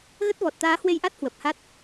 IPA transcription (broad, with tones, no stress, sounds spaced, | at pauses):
ɣ ə˦˥ t̚ v ɔ˨˩ t̚ t̪ aː˨˦ h w e˧ j ʔ a˦˥ t̚ h w ə˨˩ p̚ h a˦˥ t̚